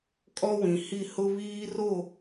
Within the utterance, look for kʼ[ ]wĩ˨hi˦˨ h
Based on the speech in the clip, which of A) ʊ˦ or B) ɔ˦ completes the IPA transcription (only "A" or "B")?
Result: B